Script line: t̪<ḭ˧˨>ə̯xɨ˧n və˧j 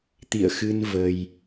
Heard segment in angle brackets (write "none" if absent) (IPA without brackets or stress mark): ḭ˧˨